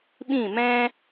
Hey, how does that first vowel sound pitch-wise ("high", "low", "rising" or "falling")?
falling